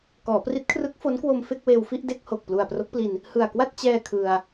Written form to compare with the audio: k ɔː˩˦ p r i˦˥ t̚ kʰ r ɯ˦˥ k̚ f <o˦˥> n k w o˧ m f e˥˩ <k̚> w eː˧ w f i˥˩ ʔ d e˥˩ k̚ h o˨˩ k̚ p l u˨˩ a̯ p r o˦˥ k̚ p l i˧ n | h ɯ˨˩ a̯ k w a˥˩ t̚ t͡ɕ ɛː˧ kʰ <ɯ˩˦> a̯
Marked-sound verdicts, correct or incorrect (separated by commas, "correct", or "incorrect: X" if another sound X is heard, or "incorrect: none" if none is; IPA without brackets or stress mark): correct, correct, incorrect: ɯ˧